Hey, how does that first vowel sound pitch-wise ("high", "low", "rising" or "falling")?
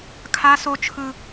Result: high